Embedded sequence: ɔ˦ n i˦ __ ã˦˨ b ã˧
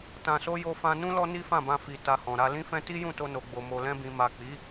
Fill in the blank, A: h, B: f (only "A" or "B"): B